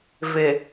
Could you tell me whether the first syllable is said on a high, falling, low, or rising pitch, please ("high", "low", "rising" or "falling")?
low